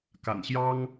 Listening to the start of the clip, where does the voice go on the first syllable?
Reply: low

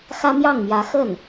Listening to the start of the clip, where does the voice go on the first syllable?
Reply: high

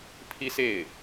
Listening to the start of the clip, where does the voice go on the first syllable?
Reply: high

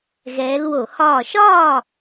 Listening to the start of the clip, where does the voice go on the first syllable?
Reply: rising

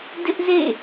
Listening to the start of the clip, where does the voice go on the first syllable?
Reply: high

